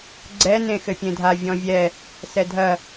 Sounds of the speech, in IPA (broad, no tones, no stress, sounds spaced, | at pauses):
ɡ͡ǀ ɛ n ẽ x ɘ pʲ ẽ dʱ a vʲ ɔ̃ vʲ ɛ | s ɛ dʱ ɐ